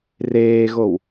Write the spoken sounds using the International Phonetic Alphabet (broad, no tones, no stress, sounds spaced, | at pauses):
r eː ɣ o w